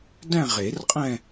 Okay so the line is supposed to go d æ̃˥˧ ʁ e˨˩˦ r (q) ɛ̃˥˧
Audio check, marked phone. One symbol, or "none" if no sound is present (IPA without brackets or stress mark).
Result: qʼ